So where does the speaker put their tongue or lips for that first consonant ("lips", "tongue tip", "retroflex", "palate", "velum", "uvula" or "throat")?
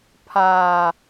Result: lips